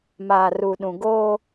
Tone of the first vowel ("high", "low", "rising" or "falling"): low